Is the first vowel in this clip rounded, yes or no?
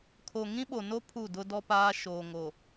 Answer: yes